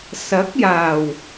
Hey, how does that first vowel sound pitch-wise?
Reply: rising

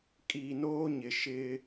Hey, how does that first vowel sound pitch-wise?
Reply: low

